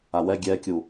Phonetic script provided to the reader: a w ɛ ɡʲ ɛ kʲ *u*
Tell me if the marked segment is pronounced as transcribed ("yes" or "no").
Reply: yes